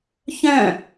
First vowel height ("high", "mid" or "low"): mid